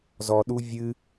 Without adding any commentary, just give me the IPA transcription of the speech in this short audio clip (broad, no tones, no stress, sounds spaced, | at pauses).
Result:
z ɔ ɗ u vʲ ɨ